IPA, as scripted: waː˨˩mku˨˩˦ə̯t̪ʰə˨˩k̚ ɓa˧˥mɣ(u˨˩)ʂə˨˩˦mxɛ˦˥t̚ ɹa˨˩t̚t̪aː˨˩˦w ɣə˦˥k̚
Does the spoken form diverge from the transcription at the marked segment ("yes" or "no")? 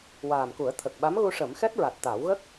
yes